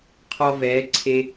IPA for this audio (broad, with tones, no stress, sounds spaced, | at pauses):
qʰ ɔ˧ v ɛː˩˧ ǀʰ e˧